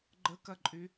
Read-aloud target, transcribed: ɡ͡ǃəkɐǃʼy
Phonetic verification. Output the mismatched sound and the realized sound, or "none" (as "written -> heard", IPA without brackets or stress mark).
none